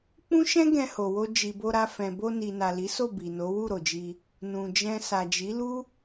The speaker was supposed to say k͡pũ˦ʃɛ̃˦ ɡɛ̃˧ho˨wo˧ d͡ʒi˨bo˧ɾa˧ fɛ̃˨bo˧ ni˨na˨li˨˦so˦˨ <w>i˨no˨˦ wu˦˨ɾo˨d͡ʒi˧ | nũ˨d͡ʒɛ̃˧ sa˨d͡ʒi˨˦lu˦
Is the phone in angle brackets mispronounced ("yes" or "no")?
yes